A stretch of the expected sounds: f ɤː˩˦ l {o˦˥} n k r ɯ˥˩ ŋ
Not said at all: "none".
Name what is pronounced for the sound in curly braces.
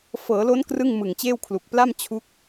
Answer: o˦˥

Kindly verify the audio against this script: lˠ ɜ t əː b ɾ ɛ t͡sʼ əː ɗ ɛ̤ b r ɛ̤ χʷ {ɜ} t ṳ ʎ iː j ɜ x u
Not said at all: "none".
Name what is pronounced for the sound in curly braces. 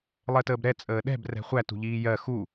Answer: æ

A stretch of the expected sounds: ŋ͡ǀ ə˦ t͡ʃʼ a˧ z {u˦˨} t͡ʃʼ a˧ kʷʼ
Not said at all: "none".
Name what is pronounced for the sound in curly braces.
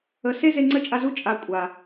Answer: u˦˨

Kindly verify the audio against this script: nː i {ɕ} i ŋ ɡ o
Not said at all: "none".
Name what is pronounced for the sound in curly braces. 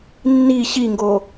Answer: ɕ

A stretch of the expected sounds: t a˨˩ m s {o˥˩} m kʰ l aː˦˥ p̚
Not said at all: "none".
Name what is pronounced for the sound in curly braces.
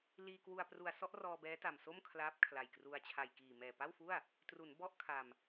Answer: o˥˩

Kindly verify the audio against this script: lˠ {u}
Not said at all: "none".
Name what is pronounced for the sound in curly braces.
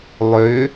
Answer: ʏ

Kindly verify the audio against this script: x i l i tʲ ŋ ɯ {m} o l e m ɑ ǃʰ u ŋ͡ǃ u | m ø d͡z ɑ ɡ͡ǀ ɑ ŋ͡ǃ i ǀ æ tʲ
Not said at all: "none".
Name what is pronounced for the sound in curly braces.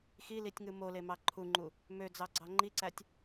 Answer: m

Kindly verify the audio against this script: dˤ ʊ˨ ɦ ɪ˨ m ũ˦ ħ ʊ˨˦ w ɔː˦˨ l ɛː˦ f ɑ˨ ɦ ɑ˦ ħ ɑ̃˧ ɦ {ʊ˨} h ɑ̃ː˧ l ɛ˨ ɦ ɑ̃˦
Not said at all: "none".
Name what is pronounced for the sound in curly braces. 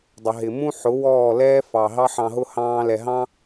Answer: ʊ˦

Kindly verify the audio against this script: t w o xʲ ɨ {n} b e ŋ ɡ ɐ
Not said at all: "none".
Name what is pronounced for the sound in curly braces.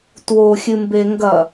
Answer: m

